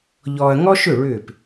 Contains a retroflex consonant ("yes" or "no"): yes